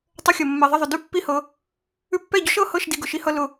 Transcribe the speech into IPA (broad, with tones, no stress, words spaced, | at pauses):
tˤə˧xʲʌ˨ mːɛ˨ ðˤə˦˨ðˤʊ˨ dʉ˦pːi˦˨hɤ˧ | ʉ˧pːɛ˦˨ɟʊ˦ʃ ɤ˦˨hɤ˦˨ʃ di˧ ɡʊ˨ʃi˦hʌ˦ lʊ˧